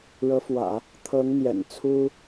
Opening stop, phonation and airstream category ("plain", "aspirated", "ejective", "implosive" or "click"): aspirated